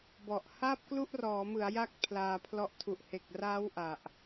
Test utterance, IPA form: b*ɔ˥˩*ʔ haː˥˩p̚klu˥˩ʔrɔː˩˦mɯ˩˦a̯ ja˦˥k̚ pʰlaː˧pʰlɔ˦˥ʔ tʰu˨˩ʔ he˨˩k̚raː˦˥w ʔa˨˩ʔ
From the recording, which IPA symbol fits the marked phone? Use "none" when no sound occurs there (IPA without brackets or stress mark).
ɔ˨˩